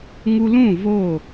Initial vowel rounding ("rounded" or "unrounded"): rounded